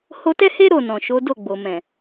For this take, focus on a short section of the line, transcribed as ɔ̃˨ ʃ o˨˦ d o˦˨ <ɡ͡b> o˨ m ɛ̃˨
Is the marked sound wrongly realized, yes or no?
no